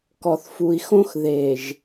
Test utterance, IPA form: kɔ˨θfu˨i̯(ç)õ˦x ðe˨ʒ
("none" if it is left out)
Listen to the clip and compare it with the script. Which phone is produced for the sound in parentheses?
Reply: x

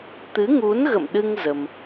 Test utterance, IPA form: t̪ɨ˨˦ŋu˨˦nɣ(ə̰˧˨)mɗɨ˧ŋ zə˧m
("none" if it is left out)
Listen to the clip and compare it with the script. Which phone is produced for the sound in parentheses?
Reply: ə̰˧˨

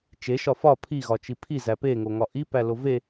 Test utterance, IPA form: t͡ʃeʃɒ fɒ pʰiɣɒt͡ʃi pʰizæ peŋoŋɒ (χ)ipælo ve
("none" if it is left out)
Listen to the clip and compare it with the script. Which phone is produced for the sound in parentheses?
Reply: ʔ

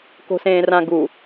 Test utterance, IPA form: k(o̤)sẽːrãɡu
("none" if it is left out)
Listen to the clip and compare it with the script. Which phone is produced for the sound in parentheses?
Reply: o̤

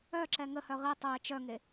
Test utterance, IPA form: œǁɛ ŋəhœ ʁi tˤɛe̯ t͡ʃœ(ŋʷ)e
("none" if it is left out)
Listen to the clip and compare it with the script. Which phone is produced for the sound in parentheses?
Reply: ŋ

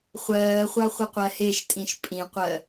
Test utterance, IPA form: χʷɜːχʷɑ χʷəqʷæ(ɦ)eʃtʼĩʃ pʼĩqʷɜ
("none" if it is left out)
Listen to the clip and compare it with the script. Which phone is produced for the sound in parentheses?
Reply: h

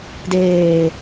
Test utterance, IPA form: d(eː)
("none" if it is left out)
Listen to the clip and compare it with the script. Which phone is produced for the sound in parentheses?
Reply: eː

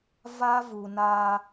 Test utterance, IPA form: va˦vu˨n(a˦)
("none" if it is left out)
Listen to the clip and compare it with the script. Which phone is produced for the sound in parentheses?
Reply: a˦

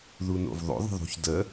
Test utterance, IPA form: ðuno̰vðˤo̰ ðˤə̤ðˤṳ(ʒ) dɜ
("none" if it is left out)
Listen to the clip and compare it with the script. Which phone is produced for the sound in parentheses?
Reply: ç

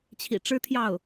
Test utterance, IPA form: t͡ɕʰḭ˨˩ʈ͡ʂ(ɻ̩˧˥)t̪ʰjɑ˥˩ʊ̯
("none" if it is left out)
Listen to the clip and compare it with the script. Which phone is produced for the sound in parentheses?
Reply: ɻ̩˥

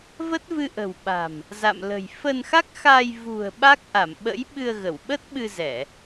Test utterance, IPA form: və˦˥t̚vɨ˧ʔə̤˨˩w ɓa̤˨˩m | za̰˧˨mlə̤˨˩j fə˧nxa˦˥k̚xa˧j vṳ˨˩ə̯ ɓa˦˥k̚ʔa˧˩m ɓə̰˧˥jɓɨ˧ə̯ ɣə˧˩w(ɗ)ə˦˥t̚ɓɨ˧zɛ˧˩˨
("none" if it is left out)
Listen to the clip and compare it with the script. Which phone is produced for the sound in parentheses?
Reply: ɓ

